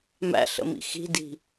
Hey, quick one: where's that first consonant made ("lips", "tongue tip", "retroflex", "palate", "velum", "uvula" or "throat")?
lips